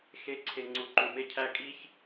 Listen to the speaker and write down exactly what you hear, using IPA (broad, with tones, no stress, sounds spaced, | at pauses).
x e˨˦ ǀʰ e˨ ŋ͡ǀ u˨ ǃ u˨ m e˦˨ cʰ æ˦ kʼ i˦ ç